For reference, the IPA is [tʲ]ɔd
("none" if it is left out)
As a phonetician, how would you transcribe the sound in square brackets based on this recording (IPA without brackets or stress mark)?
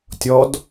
tʲ